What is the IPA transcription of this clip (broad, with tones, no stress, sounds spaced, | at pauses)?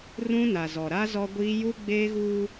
r ũ˦ n a˨ z ɔ˨ ɾ a˦ z ɔ˦ ɡʷ iː˦ j u˦ ɡ͡b eː˦ ɣ uː˦